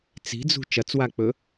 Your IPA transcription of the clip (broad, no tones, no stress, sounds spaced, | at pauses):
t͡s i̤ d͡z ṳ t͡ʃ ɐ t͡s w a k͡p ɵ